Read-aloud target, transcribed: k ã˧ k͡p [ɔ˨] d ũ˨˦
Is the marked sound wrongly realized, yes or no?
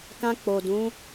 yes